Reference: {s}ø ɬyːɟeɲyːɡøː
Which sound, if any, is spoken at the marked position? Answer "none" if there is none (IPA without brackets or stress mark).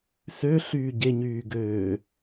s